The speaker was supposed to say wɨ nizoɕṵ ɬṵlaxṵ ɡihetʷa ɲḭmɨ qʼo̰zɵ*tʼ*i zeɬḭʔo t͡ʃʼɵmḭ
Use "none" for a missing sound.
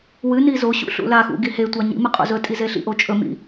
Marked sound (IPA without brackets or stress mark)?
tʼ